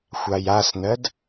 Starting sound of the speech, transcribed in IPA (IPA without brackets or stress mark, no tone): xʷ